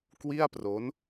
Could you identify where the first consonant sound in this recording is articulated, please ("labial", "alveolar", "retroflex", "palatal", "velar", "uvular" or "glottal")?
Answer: velar